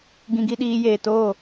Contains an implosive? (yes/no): yes